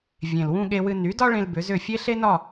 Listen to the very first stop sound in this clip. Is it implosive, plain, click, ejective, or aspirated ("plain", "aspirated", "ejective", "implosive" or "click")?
implosive